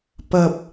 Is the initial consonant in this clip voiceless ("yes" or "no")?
yes